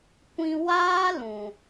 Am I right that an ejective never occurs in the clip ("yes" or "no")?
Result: yes